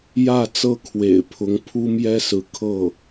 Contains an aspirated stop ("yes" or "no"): yes